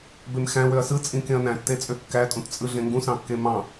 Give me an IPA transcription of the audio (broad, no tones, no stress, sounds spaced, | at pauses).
b e m x æ̃ w ø ɐ̯ s ɯ t͡sʼ ĩ k ẽ ɐ̯ n æ̃ tː e t͡sʼ ø kː æ tʼ ũ t t͡sʼ ɯ ɮ ẽ ŋ ɡ ũ s ɑ̃ kː e m ɑ̃